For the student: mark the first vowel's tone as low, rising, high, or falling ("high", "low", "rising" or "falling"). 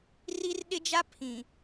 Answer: high